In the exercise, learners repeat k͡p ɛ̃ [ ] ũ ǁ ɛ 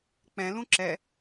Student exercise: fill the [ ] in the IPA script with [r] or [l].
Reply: l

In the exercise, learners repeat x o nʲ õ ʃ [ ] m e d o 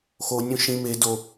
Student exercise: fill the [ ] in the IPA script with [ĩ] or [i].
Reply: ĩ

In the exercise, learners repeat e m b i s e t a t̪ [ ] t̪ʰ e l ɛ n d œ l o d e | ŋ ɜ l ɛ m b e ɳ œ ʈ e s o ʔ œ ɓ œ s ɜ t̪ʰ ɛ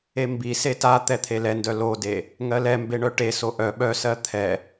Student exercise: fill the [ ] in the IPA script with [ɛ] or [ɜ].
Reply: ɛ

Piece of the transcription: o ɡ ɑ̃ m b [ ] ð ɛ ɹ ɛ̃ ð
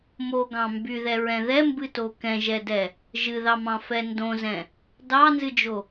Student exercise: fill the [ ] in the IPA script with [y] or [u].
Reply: y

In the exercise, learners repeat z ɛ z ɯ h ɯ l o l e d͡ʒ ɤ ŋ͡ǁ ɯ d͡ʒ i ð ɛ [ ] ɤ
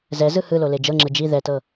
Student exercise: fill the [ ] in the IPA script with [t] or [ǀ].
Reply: t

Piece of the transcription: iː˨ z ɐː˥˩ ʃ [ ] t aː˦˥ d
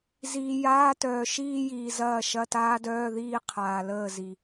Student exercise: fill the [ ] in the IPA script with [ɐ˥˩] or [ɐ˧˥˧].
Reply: ɐ˧˥˧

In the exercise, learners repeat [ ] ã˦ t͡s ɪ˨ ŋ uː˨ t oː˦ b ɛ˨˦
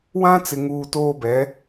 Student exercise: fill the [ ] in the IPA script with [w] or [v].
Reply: w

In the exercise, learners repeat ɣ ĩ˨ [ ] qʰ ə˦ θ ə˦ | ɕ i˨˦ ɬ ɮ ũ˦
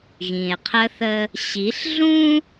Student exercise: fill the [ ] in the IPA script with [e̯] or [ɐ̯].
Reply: e̯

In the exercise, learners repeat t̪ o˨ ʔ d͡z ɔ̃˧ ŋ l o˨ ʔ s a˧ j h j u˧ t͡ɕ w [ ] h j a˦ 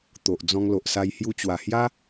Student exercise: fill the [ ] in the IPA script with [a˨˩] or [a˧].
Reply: a˨˩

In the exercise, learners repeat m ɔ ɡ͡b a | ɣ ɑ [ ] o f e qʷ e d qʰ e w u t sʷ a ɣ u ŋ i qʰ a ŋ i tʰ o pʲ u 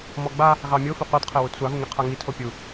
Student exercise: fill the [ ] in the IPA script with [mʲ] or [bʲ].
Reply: mʲ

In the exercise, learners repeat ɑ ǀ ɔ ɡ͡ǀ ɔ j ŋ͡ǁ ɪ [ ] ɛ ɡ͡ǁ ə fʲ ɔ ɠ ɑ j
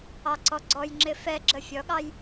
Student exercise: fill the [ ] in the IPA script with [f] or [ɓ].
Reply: f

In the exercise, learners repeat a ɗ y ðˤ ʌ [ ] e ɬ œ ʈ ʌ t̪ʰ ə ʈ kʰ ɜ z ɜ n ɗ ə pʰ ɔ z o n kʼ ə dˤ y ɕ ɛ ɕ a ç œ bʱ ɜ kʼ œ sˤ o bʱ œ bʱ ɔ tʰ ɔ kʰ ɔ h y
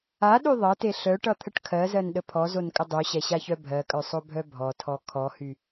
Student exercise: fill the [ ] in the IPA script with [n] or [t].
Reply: t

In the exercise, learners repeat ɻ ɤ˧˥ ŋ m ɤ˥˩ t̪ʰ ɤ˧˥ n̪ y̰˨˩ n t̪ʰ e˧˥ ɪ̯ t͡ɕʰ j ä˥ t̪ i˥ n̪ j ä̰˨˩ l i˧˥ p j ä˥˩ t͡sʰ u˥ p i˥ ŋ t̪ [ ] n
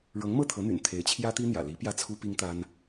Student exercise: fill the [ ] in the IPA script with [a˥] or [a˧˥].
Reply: a˥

